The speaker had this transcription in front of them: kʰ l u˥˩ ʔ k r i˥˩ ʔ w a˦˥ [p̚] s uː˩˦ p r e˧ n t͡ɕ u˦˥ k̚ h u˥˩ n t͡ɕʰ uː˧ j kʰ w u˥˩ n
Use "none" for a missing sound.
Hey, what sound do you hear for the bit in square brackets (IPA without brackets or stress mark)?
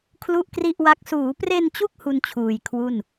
k̚